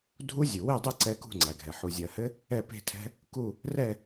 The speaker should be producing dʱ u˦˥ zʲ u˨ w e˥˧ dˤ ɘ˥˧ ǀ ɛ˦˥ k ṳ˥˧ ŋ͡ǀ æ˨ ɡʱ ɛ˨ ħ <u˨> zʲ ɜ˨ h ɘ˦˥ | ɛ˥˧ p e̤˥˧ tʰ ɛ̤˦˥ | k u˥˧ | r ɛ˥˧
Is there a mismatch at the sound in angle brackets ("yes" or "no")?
no